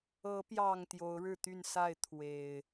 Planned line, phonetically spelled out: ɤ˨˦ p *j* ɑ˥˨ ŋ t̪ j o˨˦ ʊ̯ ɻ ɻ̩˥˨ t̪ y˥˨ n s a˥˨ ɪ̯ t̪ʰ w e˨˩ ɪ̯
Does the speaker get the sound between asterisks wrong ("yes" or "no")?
no